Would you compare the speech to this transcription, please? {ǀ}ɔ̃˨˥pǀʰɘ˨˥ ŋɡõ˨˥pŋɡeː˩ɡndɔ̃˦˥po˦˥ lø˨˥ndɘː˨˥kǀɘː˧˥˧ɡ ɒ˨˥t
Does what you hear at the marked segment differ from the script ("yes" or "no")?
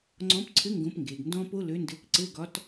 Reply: yes